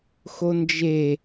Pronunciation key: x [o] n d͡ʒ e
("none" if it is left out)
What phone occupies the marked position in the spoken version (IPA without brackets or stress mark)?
o